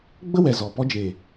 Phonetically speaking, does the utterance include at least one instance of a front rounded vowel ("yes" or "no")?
no